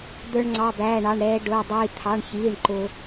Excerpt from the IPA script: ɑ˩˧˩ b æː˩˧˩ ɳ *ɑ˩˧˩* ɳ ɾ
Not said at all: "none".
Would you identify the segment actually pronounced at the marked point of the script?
ɑ˩˧˩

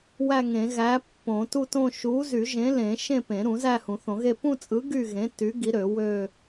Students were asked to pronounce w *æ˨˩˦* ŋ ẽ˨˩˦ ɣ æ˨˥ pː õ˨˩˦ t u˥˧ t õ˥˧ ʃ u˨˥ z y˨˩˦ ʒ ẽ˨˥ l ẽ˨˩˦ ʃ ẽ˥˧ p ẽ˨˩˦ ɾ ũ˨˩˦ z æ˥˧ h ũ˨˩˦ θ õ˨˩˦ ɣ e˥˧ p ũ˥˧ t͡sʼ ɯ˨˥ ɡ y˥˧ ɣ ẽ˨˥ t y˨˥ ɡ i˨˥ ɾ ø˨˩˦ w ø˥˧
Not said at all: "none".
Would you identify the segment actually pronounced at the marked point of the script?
æ˥˧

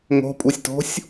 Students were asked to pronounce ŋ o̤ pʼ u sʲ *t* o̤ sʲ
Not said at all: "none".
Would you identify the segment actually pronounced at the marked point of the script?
t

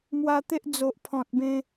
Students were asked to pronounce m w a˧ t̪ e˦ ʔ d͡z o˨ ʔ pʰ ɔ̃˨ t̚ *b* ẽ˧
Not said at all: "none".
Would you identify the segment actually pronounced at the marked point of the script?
b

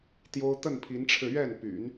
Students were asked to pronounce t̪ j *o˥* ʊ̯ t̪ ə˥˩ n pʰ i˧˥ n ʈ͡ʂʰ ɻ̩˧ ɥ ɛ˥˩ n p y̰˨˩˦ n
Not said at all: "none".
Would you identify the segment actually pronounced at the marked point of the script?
o˥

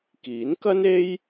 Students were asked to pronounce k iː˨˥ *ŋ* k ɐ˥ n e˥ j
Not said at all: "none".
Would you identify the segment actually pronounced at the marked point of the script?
n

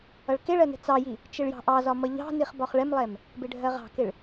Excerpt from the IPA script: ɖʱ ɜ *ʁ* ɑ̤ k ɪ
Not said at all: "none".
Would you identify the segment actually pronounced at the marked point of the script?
ʁ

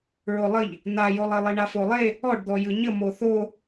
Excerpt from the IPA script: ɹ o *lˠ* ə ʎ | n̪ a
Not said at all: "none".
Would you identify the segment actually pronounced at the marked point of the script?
lˠ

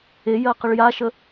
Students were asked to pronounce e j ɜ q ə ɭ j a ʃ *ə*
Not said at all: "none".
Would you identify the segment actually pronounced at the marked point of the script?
ə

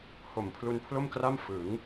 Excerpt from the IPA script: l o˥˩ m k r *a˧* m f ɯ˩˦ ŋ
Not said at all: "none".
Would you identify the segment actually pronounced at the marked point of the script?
a˥˩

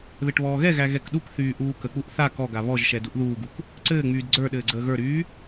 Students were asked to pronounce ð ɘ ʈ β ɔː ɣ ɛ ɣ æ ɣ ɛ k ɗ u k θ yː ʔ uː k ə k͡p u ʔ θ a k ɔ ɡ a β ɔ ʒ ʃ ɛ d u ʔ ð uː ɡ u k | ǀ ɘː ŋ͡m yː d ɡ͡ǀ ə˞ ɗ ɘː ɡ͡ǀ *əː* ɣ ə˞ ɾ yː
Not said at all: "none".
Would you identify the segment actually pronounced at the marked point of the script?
əː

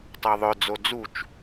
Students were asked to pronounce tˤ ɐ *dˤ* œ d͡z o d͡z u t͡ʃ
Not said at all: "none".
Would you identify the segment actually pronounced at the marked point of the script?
ðˤ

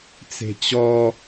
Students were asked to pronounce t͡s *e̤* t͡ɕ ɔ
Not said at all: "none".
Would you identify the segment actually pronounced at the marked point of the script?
e̤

